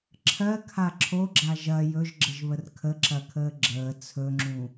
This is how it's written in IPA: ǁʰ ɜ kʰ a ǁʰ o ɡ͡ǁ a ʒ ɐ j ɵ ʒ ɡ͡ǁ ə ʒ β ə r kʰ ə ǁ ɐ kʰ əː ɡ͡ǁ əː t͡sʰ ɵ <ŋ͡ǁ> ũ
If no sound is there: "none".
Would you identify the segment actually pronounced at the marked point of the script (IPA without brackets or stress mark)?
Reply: ŋ͡ǁ